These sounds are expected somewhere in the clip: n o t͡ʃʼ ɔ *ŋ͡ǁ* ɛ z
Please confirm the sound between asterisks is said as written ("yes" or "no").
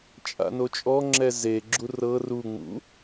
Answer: yes